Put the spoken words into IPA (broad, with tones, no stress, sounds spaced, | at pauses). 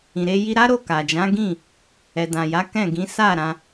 ĩ˨ ɾ e˧ j i˧ ɾ a˦ ɾ o˦˨ k a˨ d͡ʒ ã˨˦ ɡ ĩ˦˨ | ɛ˨ d ã˨ j a˨˦ k ɛ̃˦˨ ɡ ĩ˨˦ s a˦˨ ɾ ã˧